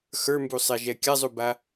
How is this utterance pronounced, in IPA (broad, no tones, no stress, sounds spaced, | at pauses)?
x ə˞ m b u sˤ ɛ ʒ ɛ kʲ a zˤ u b a